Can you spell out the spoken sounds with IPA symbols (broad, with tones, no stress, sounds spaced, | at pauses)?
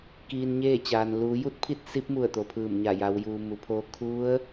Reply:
k iː˧ n ɲ eː˥˨ t͡ɕ aː˩ n l uː˩˧ j u˥˨ t̚ pʰ i˥˨ t̚ s i˧˥ p̚ m u˧˩ ə̯ t̪ o˩ pʰ ɯː˧˩ m ɲ a˧˩ j a˩˧ w j uː˩ m u˩˧ pʰ o˧ kʰ u˧˥ ə̯